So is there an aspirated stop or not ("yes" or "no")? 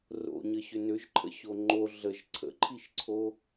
yes